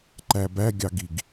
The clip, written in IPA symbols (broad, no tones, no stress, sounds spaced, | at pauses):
ǃ æ b æ ɡʲ ɑ ɡ i ɡ